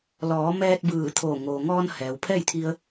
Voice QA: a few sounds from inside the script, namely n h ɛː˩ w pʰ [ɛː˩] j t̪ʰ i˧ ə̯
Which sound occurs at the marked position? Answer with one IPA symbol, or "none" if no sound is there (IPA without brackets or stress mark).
ɛː˥˨